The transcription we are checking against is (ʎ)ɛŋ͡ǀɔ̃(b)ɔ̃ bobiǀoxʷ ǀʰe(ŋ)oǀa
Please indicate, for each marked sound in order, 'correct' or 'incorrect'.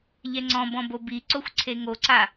correct, correct, correct

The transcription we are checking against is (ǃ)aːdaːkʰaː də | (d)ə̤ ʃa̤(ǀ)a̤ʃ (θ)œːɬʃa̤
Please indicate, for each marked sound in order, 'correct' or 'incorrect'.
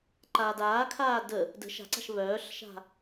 correct, correct, correct, incorrect

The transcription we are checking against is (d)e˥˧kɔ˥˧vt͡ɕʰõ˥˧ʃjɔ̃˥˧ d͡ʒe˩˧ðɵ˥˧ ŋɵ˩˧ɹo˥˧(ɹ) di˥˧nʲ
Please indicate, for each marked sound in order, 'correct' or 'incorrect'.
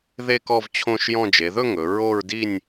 incorrect, correct

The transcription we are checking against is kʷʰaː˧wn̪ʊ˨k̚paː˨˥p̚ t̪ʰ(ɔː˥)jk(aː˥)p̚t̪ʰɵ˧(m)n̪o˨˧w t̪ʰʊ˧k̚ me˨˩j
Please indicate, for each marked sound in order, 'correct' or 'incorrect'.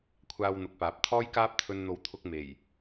correct, correct, incorrect

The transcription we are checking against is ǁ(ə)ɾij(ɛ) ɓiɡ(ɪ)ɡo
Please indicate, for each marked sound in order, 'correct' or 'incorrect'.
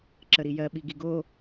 correct, incorrect, incorrect

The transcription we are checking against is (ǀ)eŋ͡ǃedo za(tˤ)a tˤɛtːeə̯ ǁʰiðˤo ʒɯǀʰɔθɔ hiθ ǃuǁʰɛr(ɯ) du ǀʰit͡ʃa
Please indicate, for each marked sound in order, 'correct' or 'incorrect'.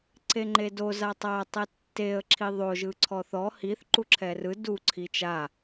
correct, correct, correct

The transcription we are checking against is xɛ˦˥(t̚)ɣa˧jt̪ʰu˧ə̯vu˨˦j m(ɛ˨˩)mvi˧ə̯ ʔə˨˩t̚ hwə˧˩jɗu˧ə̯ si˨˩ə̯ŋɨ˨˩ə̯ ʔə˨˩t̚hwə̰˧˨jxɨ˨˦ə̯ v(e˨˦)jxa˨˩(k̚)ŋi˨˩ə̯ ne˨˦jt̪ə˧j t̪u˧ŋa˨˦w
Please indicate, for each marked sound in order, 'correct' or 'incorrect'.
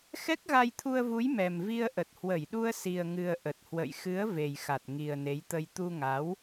incorrect, correct, incorrect, incorrect

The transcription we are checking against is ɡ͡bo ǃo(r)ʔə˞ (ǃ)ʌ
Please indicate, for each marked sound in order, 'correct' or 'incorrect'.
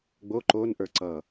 incorrect, incorrect

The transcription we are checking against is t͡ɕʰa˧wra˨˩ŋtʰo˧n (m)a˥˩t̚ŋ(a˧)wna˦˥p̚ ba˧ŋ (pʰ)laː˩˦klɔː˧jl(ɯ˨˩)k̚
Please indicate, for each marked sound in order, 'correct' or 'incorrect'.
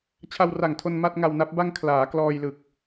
correct, correct, incorrect, correct

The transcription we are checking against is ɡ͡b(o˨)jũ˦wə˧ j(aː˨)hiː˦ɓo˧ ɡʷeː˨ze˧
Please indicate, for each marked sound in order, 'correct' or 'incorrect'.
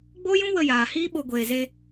incorrect, correct

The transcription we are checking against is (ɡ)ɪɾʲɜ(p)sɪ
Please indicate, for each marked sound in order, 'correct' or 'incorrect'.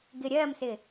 correct, incorrect

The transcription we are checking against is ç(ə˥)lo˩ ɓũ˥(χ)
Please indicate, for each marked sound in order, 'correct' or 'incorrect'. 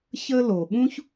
correct, incorrect

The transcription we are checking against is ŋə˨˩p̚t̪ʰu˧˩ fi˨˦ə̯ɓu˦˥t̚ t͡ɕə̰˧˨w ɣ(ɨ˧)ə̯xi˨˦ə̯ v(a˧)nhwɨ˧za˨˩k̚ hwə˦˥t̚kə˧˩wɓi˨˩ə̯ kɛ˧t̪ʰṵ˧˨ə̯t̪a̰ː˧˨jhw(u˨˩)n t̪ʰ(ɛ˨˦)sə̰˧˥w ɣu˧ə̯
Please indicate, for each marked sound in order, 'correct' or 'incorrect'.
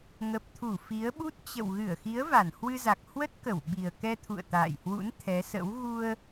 incorrect, incorrect, incorrect, correct

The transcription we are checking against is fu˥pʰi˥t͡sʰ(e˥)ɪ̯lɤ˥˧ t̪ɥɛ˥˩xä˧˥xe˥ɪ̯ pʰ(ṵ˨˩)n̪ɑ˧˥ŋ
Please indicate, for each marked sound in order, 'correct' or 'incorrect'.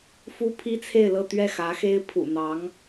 incorrect, correct

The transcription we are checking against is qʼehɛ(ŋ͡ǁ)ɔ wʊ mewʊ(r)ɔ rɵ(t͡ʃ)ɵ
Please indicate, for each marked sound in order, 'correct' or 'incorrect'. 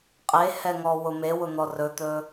incorrect, incorrect, incorrect

